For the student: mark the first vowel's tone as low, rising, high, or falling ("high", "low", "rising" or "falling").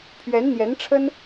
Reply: rising